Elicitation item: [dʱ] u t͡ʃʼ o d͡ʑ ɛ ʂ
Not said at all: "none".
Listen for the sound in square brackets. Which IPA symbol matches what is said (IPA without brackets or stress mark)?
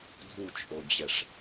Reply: dʱ